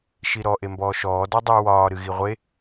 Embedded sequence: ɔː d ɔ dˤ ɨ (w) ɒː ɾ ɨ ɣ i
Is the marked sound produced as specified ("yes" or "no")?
yes